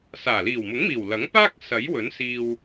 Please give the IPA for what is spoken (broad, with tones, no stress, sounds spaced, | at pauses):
s aː˨˩ l iː˨˩ w m ʊ˨˥ ŋ m iː˨˩ w l ɐ˨˥ ŋ p aː˥ k̚ s ɐ˨˥ j w ɵ˨˥ n s iː˧ w